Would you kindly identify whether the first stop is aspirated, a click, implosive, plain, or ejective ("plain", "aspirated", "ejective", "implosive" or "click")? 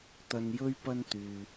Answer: plain